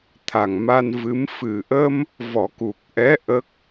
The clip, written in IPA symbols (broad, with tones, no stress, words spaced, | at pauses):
t̪ʰa˨˩ŋma˧nvɨ˧˥m fɨ˨˩ʔə˧m | vɔ˨˩˦ku˨˩k̚ʔɛ˧˥ ʔə˦˥k̚